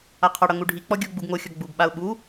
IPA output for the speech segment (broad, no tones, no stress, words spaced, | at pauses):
aqʰɒɽʌ ŋuɖʱik͡pɔ ɡʲoɡ͡buɡ ŋoxʲɒ ɡ͡buɡɓaʊ̯ ɓu